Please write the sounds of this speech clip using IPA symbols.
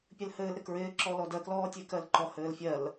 pʲ ɘ l h ɘː l ɾ ɪ k ɹ ɪː ǁ ɔ l ɔ d ɜ k l ɔː tʲ e k ɜ l ǃ ɔ h ɘː l fʲ ɜ l

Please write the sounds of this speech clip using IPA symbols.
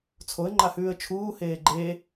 t͡sʰ o ə̯ ŋ͡ǃ a h ʉː ə̯ t͡ʃʰ uː h eː ɡ͡ǃ e

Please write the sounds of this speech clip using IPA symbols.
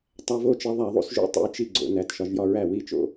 tˤ æ˧ v o˥˩ t͡ʃ e˧ ðˤ æ˧˩˧ ðˤ ṵ˧ s ʒ ṵ˥˩ tˤ ṵ˧ j t͡ʃ i˥˩ ɡ͡ǀ o̰˧˩˧ n æ˩˧˩ t ʃ ɒ˧ ʒ j ɒ˧ ɹ æ˥˩ w i˥˩ t͡ʃ o̰˥˩

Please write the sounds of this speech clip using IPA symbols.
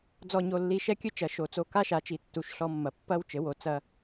d͡z ɔ˧˩ ɲ o˧˩ lː i˧˩ ʃ ɛ˦ kʲ ɨ˦ t͡ʃ ɐ˩˥ ʃ o˩˥ t͡s o˧˩ k a˦ ʃ a˩˥ t͡ʃ i˩˥ tː u˧˩ ʃ ɬ ɔ˦ mː ɐ˧˩ pː ɐ˦ w t͡ʃ ɘ˩˥ w o˩˥ t͡s ɐ˦

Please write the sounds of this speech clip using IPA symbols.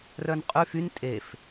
r œ n qʼ y f y n tʼ e f

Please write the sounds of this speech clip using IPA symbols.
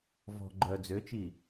v ɔ̤ ɡ͡ǃ œ d͡z ø t͡ʃ i

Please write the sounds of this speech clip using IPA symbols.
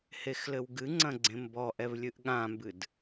h e x l ɘ w ɡ ɨ ŋ͡ǀ ɐ̃ ɡ͡ǀ ẽ m b ɔ ʔ ɛ v lʲ ɨ ʔ ɠ ã m b ɨ d

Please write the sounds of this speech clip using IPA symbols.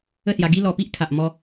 ə˥˧ s j a˧ ɡ i˦ l ɔ˧ p i˦ ʔ kʰ a˨ ʔ m ɔ˧

